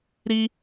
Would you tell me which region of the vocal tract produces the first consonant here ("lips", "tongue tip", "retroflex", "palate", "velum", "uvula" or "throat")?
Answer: tongue tip